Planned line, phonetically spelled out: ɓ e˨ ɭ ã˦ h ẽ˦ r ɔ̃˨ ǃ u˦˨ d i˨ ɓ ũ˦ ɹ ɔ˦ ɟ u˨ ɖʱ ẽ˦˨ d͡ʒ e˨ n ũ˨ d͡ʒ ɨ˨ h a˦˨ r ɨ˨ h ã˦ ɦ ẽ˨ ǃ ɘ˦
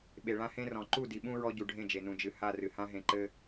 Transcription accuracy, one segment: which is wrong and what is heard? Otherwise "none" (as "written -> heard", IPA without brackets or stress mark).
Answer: none